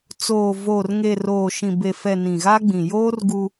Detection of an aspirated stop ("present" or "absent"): absent